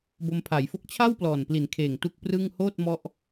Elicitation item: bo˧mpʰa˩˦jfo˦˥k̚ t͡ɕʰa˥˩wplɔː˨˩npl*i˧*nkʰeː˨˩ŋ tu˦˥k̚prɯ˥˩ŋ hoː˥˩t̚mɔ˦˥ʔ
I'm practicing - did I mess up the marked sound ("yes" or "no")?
yes